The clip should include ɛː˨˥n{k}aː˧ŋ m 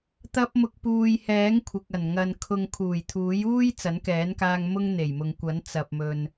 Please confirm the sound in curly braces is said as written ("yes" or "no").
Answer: yes